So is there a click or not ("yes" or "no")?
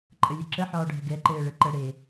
yes